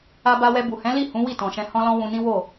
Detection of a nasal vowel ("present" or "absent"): present